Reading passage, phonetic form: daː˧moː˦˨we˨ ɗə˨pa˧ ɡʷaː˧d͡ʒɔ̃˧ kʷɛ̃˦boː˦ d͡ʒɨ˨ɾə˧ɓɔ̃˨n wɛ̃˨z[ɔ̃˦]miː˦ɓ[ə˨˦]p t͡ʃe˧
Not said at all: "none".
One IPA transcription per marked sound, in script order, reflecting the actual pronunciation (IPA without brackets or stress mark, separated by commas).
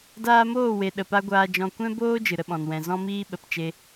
ɔ̃˦, ə˨˦